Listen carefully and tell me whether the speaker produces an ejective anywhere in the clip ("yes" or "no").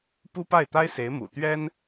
no